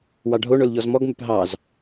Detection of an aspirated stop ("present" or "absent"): absent